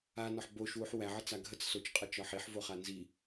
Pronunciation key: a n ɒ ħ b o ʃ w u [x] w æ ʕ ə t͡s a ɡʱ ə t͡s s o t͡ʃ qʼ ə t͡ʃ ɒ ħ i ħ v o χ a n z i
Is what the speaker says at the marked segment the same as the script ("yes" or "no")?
no